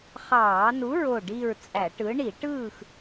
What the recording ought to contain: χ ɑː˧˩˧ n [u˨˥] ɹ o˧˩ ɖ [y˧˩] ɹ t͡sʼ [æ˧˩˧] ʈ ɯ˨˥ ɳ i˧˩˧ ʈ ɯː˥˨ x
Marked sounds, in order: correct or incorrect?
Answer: correct, incorrect: i˧˩, correct

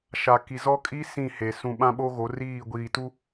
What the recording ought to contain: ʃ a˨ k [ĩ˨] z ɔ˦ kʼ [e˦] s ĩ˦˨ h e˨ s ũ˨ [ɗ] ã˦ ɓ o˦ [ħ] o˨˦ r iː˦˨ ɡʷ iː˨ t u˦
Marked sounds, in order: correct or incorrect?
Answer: incorrect: i˨, incorrect: i˦, incorrect: ɓ, incorrect: ɣ

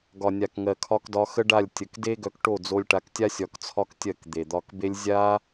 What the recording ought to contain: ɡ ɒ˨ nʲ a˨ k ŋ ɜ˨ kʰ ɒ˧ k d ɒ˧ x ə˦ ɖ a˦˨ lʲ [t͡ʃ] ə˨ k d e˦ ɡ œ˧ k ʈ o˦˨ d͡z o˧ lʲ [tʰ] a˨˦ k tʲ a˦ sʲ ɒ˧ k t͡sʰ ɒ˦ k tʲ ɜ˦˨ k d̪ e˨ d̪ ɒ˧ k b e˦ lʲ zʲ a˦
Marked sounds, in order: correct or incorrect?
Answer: incorrect: tʲ, incorrect: ʈ

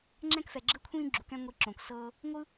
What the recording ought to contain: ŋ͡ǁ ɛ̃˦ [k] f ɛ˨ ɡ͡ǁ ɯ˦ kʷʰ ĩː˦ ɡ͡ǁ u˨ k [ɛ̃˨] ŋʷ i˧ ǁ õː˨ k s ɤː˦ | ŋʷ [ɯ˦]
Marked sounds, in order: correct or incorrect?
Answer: correct, incorrect: ɛ̃˦, correct

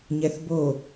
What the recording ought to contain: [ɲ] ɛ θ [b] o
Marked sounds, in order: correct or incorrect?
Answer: correct, correct

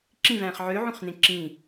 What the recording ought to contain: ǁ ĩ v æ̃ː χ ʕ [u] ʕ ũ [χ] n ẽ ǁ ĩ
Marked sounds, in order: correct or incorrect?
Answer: incorrect: ø, correct

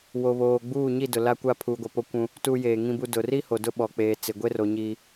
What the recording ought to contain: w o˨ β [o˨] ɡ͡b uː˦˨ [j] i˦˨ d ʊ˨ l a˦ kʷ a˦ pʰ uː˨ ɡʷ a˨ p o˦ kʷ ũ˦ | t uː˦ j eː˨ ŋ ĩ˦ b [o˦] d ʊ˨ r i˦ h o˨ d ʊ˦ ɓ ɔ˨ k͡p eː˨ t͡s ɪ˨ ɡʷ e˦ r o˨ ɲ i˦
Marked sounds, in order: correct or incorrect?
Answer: incorrect: oː˨, incorrect: ɲ, incorrect: u˦

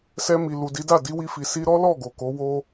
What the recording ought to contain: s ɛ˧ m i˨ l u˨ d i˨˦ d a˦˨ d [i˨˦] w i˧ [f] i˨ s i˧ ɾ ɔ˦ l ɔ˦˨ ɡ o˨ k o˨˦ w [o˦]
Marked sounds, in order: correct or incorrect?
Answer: correct, correct, correct

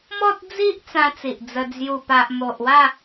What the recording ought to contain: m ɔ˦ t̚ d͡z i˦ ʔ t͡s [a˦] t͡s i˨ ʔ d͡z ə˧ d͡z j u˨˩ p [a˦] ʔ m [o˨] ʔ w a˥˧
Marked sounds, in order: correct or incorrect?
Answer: incorrect: ã˦, incorrect: a˨, correct

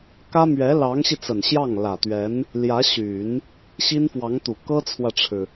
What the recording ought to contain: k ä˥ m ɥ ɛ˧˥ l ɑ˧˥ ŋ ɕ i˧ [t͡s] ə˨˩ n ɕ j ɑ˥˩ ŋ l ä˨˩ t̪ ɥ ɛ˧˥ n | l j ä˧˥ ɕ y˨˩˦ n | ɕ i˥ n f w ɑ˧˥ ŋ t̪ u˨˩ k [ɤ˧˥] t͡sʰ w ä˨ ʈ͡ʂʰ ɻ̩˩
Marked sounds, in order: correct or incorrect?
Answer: correct, incorrect: ɤ˥

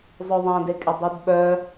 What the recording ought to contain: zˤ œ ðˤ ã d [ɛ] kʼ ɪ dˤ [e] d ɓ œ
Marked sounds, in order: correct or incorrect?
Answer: incorrect: e, incorrect: y

